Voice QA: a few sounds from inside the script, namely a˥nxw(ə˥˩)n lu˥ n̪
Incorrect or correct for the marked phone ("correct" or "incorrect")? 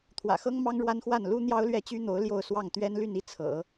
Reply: incorrect